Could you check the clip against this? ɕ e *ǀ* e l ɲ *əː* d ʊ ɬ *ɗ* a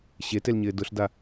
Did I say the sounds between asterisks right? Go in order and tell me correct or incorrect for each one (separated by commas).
incorrect, incorrect, incorrect